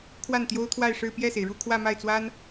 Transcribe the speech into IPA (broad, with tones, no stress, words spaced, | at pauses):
kʰwa˥˩nt̪jo˥ʊ̯t̪ʰwa˥˧ɪ̯ʂɻ̩˥˧ pjɛ˥˩se˩ɪ̯ɻu˥˧ kʰwä˥˧ma˥˩ɪ̯t͡swa˥n